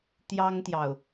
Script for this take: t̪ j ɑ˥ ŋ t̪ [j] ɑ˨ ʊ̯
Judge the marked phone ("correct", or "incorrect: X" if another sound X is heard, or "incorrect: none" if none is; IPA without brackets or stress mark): correct